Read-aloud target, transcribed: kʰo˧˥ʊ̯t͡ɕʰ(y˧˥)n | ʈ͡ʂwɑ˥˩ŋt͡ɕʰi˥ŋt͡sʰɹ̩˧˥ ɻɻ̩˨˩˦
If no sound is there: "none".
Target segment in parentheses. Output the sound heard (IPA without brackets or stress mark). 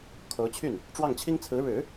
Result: y˥˩